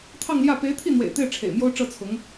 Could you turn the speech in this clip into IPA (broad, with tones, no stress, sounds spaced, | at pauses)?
t̪ʰ ɑ˥˧ ŋ l j ä˥˩ p e˧˥ ɪ̯ t̪ʰ i˥˩ n̪ w ḛ˨˩ ɪ̯ t̪ e˥˩ ɪ̯ ʈ͡ʂʰ ḛ˨˩ ɪ̯ m j o˥ ʊ̯ ʈ͡ʂ ɤ˥˩ t͡sʰ ʊ˧˥ ŋ